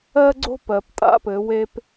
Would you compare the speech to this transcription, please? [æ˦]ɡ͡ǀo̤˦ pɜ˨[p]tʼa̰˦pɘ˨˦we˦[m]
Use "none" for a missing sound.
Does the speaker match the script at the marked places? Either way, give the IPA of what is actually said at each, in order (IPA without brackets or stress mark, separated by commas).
ɜ˦, p, p